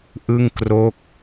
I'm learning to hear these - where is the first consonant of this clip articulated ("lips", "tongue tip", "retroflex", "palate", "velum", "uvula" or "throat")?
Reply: throat